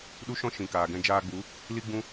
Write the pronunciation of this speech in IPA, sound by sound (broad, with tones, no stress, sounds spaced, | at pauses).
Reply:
ɗ u˦ ʃ ɔ̃˦ ʃ ĩ˨ k aː˨ ɡ ɛ̃˧ d͡ʒ aː˧ ɡ͡b u˨˦ | l i˦ ɡ͡b ũ˦